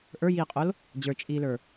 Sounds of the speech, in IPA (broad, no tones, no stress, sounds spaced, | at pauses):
ʔ ə˞ j iː qʼ o l | d͡ʑ ə˞ t͡ʃʼ iː l ə˞